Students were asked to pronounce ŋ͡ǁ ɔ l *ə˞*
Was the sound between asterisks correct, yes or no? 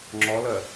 no